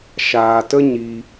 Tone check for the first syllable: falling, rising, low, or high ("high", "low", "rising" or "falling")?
low